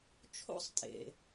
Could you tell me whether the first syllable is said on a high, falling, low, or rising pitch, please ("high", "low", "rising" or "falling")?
rising